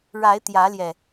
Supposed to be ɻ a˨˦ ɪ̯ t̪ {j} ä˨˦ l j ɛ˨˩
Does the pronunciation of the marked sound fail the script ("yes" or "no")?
no